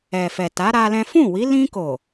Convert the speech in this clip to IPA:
ɛ˨ f ɛ˨ t a˨˦ ɾ a˦ l ɛ̃˦ f ũ˦˨ w i˨˦ l ĩ˧ k o˨

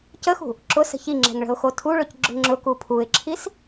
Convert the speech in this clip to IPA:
c ə x ṳ | ǁ ʊ s ə̤ ç i ŋ͡ǁ ɛ̤ ŋ ɭ ə̤ ʊ̯ x o tʰ u ɭ ʊ c ɡ͡ǁ ʊ ŋ͡ǁ ʊ k u pʰ u ɪ̯ ǁʰ i s

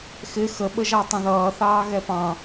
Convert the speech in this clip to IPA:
x ɪ x ə ɓ ə ʒ ɑ tˤ ə̃ ð ʌː θ ɑː ɣ ɛ p ɑ̃

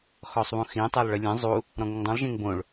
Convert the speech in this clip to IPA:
x ɔ sˤ β ũ x ĩ tˤ e lˠ ɭ ə lʲ ẽ zˤ u | ɾ ɔ̃ ŋ ə ŋ dˤ ũ lˠ ʒ ẽ ŋ b õ ɭ

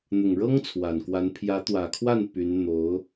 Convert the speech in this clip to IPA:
n̪ ʊ˨˩ ŋ ɻ ɤ˥ ŋ t͡sʰ w a˨˩ n k w a˧˥ n pʰ j ä˧˥ t̪ w ä˨˩ kʰ w a˥˩ n p y˧˥ n n̪ o˧˥ ʊ̯

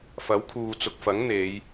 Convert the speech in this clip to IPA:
f ɐ˨˥ w kʰ uː˨ t͡s ʊ˨ k̚ f ɐ˨˥ ŋ n̪ e˨˧ j

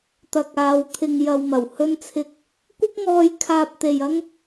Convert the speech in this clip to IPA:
t̪ ɐ˨ k̚ aː˨˧ w t̪ʰ ɪ˨ ŋ j ɐ˨ w m ɐ˨˩ w h ɵ˧ n t͡sʰ ɪ˧ k̚ | kʷ ɪ˥ k̚ ŋ ɔː˧ j kʰ aː˧ p̚ t̪ e˨ j ɐ˥ ŋ

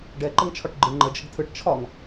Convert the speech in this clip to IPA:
ɖ ɛ ǃ ə ŋ t͡ʃʰ ɒ ʈ ɡ͡ǃ ɯ ŋ͡ǃ ə d͡ʒ ə ɡ tʰ ɯ ʈ t͡ʃʰ ɒ ŋ

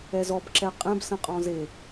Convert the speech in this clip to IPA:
ɛ z ɔ b ǁ ɛ qʼ ɛ̃ b s ə̃ qʼ ɔ̃ z e

